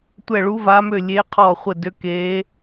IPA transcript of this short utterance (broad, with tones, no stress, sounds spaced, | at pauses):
tʷ ɛ˧˩ ɭ u˨˦ v a˨˦ m ø˧˩ lʲ e˨˦ qʰ ɔ˧˩ χʷ ɘ˧˩ d ø˨˦ k e˨˦